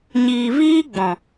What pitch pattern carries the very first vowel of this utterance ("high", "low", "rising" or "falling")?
low